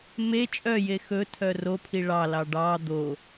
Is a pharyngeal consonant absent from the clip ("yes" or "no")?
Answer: yes